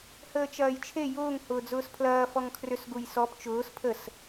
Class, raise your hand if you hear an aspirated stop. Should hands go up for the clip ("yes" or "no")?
yes